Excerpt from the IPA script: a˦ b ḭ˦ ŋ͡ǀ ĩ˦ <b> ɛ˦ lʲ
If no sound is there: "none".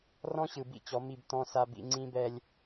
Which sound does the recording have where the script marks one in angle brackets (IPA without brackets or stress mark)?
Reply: b